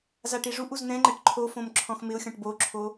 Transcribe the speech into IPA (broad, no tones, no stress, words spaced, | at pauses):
zaʈiʐuʔuz n̪ɛ̃ŋ͡ǃɛʈ ǃʰofõm ǁʰɔ̃xmɪʊ̯xʲɔ̃ʈ boǁʰo